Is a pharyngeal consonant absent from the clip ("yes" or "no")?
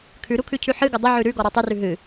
no